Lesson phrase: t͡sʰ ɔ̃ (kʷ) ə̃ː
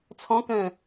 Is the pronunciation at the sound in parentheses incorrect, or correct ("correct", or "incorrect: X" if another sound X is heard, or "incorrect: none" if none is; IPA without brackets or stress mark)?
incorrect: k